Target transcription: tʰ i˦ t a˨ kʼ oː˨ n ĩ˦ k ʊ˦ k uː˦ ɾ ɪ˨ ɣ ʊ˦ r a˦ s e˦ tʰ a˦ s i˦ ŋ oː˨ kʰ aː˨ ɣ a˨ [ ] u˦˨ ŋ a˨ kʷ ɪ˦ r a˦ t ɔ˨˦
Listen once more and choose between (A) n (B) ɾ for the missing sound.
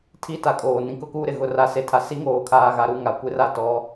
B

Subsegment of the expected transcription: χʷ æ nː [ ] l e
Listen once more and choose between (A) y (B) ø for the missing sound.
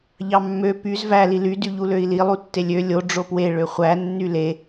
A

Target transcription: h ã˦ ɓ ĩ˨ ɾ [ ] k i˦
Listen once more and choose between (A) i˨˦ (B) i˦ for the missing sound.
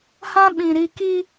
B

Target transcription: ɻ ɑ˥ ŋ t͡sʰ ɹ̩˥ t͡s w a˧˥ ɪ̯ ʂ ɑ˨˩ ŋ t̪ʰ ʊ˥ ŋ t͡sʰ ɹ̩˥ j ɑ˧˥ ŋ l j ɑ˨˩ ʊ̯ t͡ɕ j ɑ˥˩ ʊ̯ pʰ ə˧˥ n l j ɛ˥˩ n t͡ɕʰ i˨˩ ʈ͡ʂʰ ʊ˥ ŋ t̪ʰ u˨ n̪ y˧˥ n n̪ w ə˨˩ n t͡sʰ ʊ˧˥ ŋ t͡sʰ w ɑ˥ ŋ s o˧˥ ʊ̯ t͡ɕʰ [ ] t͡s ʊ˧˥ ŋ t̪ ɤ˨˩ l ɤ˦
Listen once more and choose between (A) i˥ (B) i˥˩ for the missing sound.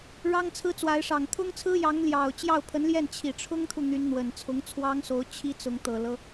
A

